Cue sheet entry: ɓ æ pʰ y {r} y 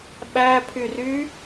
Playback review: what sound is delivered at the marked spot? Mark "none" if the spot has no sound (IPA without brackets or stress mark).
r